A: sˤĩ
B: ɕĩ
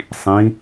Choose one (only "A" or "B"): A